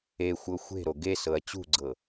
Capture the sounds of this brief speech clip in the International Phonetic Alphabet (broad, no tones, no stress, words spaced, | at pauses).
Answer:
exʷɤ xʷe̤ɾo ɡesɤɐ̯ t͡ɕṳɡ͡ǀɤ